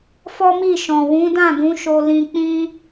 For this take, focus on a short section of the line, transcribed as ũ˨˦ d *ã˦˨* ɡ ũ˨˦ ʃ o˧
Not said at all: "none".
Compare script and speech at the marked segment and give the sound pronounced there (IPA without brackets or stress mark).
ã˦˨